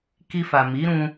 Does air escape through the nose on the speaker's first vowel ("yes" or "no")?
no